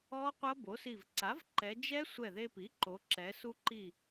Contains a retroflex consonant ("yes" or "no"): no